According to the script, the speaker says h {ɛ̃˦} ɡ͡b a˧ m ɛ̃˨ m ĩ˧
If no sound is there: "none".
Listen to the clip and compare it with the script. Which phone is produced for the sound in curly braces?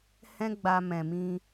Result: ɛ̃˦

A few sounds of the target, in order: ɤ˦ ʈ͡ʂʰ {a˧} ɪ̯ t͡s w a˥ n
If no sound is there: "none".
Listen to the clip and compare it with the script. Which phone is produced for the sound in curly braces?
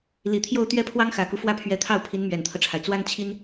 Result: a˩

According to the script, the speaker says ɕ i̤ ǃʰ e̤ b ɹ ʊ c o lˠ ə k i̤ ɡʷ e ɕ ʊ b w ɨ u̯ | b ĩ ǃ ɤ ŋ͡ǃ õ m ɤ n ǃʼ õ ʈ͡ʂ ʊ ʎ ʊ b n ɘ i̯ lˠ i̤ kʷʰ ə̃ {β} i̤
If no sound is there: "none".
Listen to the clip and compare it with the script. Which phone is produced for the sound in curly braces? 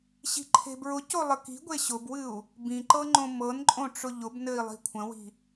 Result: w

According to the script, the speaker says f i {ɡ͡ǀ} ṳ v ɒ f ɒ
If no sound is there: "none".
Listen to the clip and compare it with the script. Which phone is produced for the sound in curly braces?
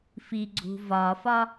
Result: ɡ͡ǀ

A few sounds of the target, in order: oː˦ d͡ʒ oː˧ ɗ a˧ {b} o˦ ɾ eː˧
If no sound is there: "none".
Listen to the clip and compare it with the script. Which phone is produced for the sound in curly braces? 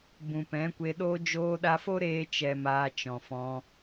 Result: f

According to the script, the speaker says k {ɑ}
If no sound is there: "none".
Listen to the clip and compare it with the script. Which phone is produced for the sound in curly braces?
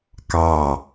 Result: ɑ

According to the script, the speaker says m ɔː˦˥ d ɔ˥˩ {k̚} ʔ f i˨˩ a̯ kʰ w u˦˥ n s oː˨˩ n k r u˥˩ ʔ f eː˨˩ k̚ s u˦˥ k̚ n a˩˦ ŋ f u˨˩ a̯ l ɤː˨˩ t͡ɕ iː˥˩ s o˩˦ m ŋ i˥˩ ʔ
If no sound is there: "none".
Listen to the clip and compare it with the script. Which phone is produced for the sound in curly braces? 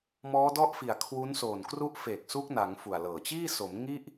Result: none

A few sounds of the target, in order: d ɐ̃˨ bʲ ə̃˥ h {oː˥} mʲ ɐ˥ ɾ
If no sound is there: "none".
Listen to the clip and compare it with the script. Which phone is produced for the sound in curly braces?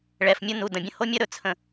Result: o˥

